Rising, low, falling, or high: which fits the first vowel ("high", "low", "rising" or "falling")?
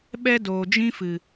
high